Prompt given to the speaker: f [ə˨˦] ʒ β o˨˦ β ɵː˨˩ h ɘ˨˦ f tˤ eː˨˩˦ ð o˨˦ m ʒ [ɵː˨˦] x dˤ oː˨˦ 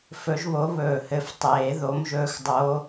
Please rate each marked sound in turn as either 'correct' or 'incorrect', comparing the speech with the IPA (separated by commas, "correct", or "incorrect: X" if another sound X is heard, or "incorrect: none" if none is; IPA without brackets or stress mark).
incorrect: ɵ˨˦, correct